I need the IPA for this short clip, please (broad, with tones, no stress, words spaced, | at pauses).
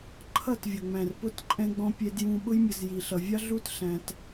ǃʰʌ˦˨tvʲʌ˨ŋ͡mæ̃˨r pʊ˦˨tǃʼɛ̃˧ɡ͡bɔ̃˧ pʲɛ˧djũ˧ ɓʊ˧jmʲʌ˨z ji˨ɬʌ˨vʲɑ˦ ɮu˦tɬæ̃˧t